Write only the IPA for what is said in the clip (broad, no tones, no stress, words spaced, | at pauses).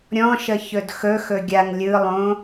ɾʲɔ̃ʃə çɵdxɵ xɵɡʲaŋ lʲɯlˠõ